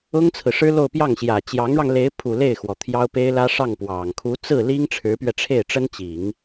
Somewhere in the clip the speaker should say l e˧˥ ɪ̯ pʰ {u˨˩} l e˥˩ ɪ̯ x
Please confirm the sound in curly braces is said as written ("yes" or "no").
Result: yes